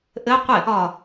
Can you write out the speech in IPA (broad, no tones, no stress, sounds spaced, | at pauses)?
ʔ ɘ qʷ ɪ | ɒ